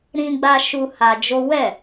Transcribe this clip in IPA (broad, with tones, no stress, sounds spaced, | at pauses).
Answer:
ɾ ĩ˦ ɡ͡b a˦ ʃ u˧ h a˧ d͡ʒ o˦ w ɛ˦˨